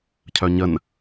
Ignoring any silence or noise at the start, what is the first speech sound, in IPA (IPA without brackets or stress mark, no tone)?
cʰ